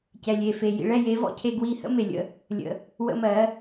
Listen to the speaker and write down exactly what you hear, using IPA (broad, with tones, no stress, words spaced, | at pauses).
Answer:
cɛ˨lʲe˨fe˨ jḭ˨ɭɛ˦˨je˨˦vɔ̰˧ cʰe˧ ɡwi˧ hə̰˦me˨lʲə̰˦˨ | lʲə̰˧ | wə̰˧mɜ˨˦